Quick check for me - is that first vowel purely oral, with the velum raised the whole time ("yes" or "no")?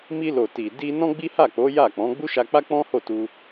yes